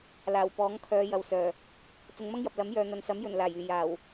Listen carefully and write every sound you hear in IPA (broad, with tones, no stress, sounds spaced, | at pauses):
l aː˨˩ w p ɔː˨˥ ŋ kʰ œː˨˧ j ɐ˨ w s œː˨˩ | t͡s ʊ˨˧ ŋ m ɐ˥ ŋ j ɐ˨ p̚ l ɐ˨˥ m j œː˨ n̪ ɐ˨ n s ɐ˨˥ m j ɵ˨˩ n l aː˨˩ j yː˨˩ j aː˨˩ w